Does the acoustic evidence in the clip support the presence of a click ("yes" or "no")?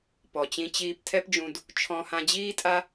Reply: no